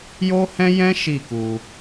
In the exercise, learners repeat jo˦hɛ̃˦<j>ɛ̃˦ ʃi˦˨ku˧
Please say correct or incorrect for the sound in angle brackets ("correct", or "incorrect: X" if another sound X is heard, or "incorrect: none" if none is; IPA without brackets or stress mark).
correct